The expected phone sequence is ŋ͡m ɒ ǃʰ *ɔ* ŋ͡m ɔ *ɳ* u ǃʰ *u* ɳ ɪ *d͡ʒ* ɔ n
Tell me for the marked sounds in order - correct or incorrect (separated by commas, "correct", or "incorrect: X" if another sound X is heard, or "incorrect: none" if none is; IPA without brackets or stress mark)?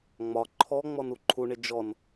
correct, incorrect: n, correct, correct